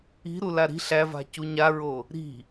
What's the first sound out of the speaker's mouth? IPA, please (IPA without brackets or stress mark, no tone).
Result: i̤